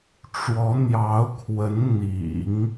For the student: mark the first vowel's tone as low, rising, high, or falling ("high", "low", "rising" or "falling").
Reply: rising